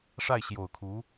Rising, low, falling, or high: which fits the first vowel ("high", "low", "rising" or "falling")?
falling